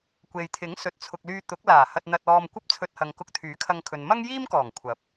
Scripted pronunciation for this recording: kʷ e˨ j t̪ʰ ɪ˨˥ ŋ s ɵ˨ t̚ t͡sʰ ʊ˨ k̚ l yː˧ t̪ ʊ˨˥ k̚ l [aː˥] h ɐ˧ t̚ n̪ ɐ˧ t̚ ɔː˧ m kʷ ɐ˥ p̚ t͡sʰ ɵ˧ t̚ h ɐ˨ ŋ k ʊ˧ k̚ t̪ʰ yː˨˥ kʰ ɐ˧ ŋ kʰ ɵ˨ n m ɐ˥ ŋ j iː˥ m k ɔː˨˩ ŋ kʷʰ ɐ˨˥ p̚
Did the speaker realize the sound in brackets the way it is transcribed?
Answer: no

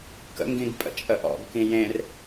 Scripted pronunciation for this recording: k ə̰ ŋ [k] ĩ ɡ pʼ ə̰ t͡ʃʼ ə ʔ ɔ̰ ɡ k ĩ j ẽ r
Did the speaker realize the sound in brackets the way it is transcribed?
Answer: no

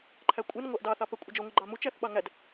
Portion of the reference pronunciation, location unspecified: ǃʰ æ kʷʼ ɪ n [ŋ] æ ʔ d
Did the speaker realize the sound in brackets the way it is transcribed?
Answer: no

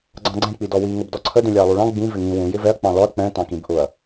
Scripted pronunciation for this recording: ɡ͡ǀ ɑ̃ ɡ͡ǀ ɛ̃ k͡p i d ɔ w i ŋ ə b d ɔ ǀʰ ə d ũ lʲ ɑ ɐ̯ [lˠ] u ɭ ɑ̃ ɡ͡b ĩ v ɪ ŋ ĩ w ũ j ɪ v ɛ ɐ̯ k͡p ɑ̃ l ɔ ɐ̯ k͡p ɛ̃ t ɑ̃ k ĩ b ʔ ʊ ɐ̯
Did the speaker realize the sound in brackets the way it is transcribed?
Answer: yes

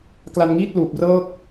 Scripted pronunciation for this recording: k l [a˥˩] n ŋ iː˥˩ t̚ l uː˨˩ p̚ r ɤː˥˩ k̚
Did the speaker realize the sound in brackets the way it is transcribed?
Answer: no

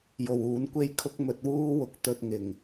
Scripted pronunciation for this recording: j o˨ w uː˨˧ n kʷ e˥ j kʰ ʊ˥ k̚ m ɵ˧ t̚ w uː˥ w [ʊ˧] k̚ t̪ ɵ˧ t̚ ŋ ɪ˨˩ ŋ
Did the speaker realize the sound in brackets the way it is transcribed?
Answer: yes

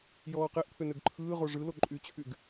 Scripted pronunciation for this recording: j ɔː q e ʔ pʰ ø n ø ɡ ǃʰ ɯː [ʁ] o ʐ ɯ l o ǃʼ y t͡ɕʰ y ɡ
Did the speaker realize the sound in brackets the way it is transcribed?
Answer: yes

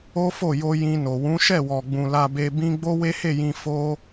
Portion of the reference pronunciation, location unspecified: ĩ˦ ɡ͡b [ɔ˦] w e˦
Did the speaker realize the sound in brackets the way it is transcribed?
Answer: no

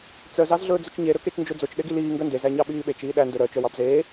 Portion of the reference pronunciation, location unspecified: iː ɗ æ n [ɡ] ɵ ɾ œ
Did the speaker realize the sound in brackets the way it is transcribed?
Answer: no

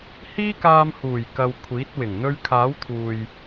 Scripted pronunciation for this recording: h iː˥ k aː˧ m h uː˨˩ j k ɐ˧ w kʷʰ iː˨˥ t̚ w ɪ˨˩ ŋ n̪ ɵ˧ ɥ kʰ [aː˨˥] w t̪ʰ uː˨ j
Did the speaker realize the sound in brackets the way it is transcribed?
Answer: yes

